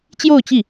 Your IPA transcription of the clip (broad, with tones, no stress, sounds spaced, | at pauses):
t͡ɕ j o˥˧ ʊ̯ t͡ɕ i˥˩